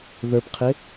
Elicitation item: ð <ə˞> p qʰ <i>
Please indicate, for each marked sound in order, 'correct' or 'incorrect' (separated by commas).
correct, incorrect